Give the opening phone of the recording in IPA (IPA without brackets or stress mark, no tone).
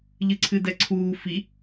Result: ʎ